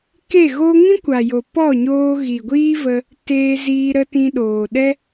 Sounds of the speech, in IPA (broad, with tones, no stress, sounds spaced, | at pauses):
k e˦˨ ɣ o˦ ŋ ĩ˦ kʷ a˨ j o˨ p ɔ˦˨ ɲ oː˧ ɣ i˨ ɡʷ iː˦ v ə˧ | t eː˧ z iː˧ ɾ ə˧ t ĩ˧ ɗ oː˨ ɗ ɛ˦